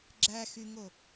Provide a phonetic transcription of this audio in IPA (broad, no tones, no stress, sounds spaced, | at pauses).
ɡ͡ǁ æ x y ŋ o